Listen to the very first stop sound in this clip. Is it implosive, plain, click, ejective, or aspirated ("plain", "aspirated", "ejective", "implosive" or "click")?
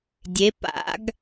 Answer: plain